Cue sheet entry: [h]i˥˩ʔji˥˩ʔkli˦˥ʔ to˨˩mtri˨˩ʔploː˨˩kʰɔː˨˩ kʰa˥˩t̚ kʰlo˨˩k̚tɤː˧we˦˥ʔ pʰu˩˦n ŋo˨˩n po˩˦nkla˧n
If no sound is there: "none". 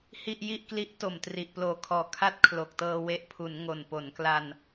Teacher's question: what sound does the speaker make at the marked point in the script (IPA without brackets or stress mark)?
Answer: h